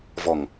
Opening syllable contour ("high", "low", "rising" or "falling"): low